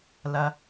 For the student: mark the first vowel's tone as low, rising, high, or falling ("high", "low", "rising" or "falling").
low